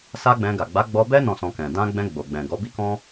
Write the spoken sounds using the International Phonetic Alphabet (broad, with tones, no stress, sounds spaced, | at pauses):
s a˦ ɡ͡b ɛ̃˧ ɡ a˨ ɡ͡b a˨˦ ɡ͡b ɔ˧ b ɛ˦ n ɔ̃˦˨ s ɔ̃˧ k ɛ̃˨ d ã˧ ɡ͡b ɛ̃˧ ɡ͡b o˨ ɡ͡b ɛ̃˨ ɡ ɔ˨˦ b i˦ k ɔ̃˦